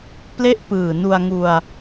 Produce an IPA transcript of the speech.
p l e˥˩ ʔ p ɯː˨˩ n u˧ a̯ ŋ u˧ a̯

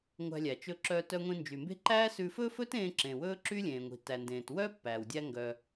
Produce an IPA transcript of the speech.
ŋʷ æ̤˧ lʲ æ˩ t͡ʃ ɵ˧ ǁ œː˧ t œ˧ ŋʷ ĩ˧ n d͡ʒ y˩ m b e̤˥ ǃ æː˥ s ʉ˧ f ɵ˥ f ɵ˥ t ẽː˧ ǁ ẽː˩ w ɵː˥ ǁ yː˥ lʲ ẽː˩ ŋʷ i̤˩ t æ˩ n d ẽː˩ t w œː˥ pː æː˩ w dʲ æ˧ ŋ ɡ œ˩

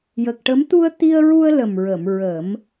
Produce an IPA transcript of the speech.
j ə˨˩ k̚ ʈ ə˧˥ m t̪ u˧ ə̯ t̪ i˧ ə̯ ɹ u˧ ə̯ l ə˨˩ m ɹ ə˨˩˨ m ɹ ə˨˩˦ m

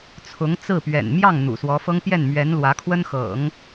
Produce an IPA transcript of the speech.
t͡sʰ ʊ˧˥ ŋ t͡s ɹ̩˥˩ p ɥ ɛ̰˨˩ n m j ɑ˥˩ ŋ n̪ ṵ˨˩ s w ɔ˧˥ f ɤ˥ ŋ p j ɛ˥˩ n m ɥ ɛ˧˥ n l w ä˧˥ kʰ w ə˥ n x ɤ̰˨˩˦ ŋ

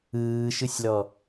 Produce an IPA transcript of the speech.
ɯː ʃ ɯ sʲ l ɔ

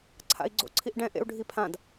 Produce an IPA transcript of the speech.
ǀʰ a̰ i̯ ɡ͡ǀ o̰ ǀʰ i ʔ ɖ ɛ̃ ʔ ḛ u̯ ɖʱ i pʰ ã d

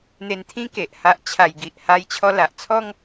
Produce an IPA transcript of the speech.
n̪ e˧ n t̪ʰ ĩ˦ k e˨ ʔ h a˦ ʔ t͡ɕʰ a˧ j ɡ i˨ ʔ h a˧ j t͡ɕʰ ɔ˧ l a˨ ʔ t͡sʰ ɔ˦ ŋ

